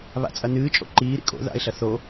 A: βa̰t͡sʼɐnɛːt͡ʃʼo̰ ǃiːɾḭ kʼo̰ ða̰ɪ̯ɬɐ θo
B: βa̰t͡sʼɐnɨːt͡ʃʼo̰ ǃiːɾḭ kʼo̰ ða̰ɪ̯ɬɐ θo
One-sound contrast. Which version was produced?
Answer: B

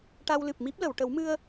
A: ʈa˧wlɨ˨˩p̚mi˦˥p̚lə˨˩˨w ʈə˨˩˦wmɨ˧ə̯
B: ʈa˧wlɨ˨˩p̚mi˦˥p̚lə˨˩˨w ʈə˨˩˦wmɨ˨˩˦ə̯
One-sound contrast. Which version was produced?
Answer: A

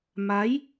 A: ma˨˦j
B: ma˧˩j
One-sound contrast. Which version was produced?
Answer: A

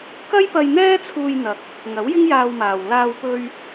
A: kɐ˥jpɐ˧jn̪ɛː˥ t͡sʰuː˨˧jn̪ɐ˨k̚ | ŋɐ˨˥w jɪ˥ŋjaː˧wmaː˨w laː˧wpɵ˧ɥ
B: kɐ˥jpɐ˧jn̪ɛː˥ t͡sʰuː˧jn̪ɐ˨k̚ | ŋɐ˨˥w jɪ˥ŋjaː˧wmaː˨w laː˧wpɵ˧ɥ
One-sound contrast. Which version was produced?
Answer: B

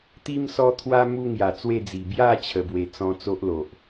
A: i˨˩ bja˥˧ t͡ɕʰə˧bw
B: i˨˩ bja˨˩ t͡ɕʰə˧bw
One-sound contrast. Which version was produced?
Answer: A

